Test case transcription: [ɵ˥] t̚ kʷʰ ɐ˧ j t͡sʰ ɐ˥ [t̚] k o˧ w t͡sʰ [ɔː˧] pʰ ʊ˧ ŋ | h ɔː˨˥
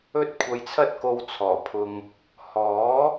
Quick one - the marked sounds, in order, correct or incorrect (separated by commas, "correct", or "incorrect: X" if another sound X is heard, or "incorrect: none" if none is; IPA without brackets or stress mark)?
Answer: correct, correct, incorrect: ɔː˨˩